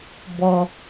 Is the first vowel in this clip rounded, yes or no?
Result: yes